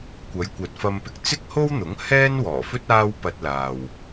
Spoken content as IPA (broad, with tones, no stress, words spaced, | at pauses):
kʷɐ˨˧jkʷɐ˨t̚fɐ˧mpɪ˧k̚ t͡sɪ˥k̚ho˥wn̪ʊ˨˥ŋ hɛː˥nwɔː˨˩fɵ˥t̚ aː˥wpɐ˧t̚laː˨w